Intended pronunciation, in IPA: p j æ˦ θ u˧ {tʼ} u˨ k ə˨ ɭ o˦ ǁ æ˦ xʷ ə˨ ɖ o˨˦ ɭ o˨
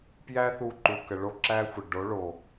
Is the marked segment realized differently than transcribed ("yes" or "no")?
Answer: yes